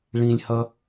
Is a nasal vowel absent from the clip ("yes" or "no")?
no